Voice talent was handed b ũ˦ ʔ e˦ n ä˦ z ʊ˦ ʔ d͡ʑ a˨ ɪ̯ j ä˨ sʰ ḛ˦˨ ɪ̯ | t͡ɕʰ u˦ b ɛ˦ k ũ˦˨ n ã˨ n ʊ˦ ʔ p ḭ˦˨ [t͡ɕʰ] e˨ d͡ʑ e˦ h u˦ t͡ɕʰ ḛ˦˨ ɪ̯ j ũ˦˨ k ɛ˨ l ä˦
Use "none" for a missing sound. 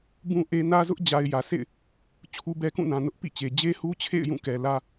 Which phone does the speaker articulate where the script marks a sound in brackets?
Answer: t͡ɕ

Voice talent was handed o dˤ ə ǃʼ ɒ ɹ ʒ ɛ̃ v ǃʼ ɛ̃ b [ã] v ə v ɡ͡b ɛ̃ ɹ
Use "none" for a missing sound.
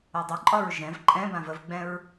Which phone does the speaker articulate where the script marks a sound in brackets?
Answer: ã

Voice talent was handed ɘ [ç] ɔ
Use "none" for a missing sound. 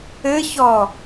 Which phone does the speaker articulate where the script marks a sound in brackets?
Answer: ç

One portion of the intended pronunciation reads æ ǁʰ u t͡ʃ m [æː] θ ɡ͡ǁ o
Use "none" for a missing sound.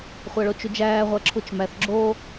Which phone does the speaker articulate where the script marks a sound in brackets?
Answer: æ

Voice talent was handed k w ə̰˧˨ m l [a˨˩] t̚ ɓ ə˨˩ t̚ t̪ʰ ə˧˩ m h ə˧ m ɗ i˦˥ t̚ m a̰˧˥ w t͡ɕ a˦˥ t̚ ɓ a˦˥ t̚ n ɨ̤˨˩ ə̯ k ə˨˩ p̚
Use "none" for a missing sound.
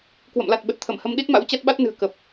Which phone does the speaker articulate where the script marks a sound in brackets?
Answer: a˨˩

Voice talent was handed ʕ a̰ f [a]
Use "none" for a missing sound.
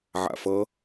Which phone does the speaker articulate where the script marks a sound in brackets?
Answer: ʌ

